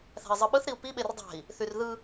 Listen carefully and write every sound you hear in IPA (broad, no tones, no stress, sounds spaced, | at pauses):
θ æ̤ i̯ zˤ ɯ ɓ ɯ θ ɾ i u̯ p i ɓ e r dˤ æ̤ i̯ | θ y r ð ɯ